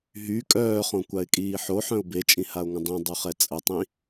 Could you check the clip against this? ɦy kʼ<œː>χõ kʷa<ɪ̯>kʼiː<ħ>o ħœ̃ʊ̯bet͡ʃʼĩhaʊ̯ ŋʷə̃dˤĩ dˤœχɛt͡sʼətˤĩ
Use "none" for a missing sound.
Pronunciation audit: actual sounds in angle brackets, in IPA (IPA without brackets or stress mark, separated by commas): œː, ɪ̯, ħ